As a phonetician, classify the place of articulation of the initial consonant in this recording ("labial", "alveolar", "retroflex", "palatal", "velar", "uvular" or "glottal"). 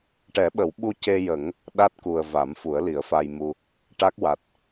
retroflex